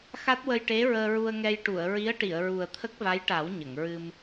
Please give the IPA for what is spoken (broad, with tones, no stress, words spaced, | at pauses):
xa˦˥t̚wə˧jʈe˧˥ɹəː˧ ɹu˧ə̯ŋɛ˧j ʈu˨˩˨ə̯ɹi˧˥ə̯ʈi˨˩˨ə̯ɹu˨˩ə̯ t̪ʰə˦˥k̚va˧˥jʈa˨˩˦w ɲə˨˩˨ŋɹɨ˧m